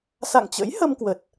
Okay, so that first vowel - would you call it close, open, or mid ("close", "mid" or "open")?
open